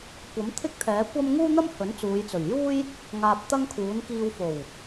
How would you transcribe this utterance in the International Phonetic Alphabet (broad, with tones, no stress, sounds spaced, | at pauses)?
kʷ ɐ˨˥ m t̪ʰ ɪ˥ k̚ t̪ʰ ɛː˨˥ kʷ ɐ˥ m ŋ uː˥ n̪ ɐ˥ m h ɵ˨˥ n t͡s uː˨˧ j t͡s ɵ˨˩ ɥ j uː˥ j | ŋ aː˧ p̚ t̪ ɐ˥ ŋ kʰ uː˨˥ n k iː˧ w f o˨˩ w